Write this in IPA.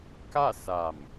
k a˥˨ s a˧˩ m

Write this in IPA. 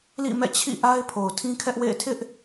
l ḭ˦˨ m ɛ̰˦˨ t͡ɕʰ ḭ˦˨ ʔ a˦ ɪ̯ pʰ o˨ ʊ̯ tʰ ĩ˦ kʰ ɛ˦ ʔ w ḛ˦˨ ɪ̯ tʰ ɪ˦ ʔ

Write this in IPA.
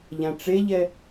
ʎ ã ʈ͡ʂ e ʎ ɛ

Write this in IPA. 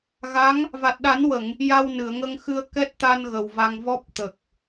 ɣ a˧˥ ŋ | v a˨˩ t̚ ɗ a˨˩˦ n w ə˨˩˨ ŋ | j a˧ w n ɨ˨˩˨ ə̯ ŋ ə˧ ŋ x ɨ˧ ə̯ k ɛ˦˥ t̚ t̪ a˧ n ɣ ə˨˩ w v a˧ ŋ v ɔ˦˥ p̚ t̪ ə˨˩ k̚

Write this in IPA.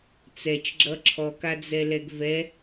t͡s ɛ t͡ʃ ɡ͡ǁ ʌ ǁʰ ɔ k a d͡z ɛ l ɛ ɡ v ɛ

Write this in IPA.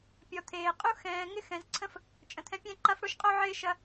pʲ ɔ˨ t̪ʰ eː˨ qʼ u˦ x ɛ̃ː˨ ŋ ɪ˦ x ɛ̃˨ z ǀʰ ə̃˦ f | t͡ʃʼ ə̃˨ t̪ʰ ɛ̃˧ pʲ ɛ̃˦ ǃ a˦ f ɽ o˦ ʃ qʼ o˦ ʕ ɪː˦ ʃ ɐ˧

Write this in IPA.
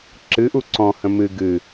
ǁ ɨ ʔ u ǀ ɔ̃ h ə̃ m ɨ ɡ ɨ

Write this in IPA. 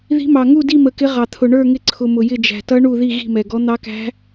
ð i̤˦˥ m ɑ˧ ŋ u˥˧ d i˥˧ m ə˧ k ɪ˦˥ ʁ ɑ˧ t̪ʰ ʊ˧ ɳ ə˞˥˧ ŋ ɪ˦˥ ǀʰ ʊ˧ m ʊ˧ j ɪ˥˧ d͡ʒ æ̤˧ t ʌ˦˥ ɳ u˥˧ ð i˥˧ ɣ i̤˥˧ m ɛ˧ ɡ ɔ˦˥ n̪ ɑ˦˥ k æ̤˦˥

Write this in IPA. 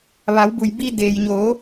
ʋ a˩˧ w b u˩ j b i˧ d eː˩ j ɲ oː˩˧

